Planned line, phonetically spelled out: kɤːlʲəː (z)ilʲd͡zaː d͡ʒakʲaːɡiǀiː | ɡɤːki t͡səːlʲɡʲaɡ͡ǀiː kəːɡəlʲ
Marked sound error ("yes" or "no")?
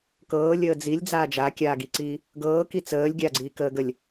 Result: yes